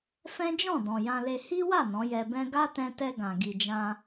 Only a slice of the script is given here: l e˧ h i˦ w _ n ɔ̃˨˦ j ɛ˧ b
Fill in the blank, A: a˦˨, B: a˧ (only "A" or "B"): A